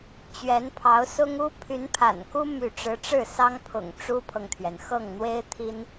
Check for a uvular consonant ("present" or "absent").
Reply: absent